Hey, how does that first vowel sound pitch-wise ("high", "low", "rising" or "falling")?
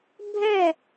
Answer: falling